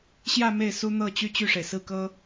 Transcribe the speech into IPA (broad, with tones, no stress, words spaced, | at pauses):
ɕjä˥˧ me˥˩ɪ̯su˥n̪ɤ˥˧ t͡ɕy˥˧t͡ɕy˥˩ʂe˩ɪ̯ sɹ̩˥˩kɤ˥